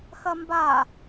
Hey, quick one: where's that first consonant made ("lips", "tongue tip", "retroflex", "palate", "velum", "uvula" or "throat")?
velum